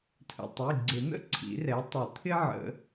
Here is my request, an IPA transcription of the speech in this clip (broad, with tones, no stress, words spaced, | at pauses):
tʰə̰˩ tˤi˩˧˩ɡ͡ǀɪ˨˩˦n̪ə̰˥˧ ǀʰḭ˨˩˦rɛ˩˥tˤʊ˨˩˦ t̪ʰɪ˥ʕə̰˨˩˦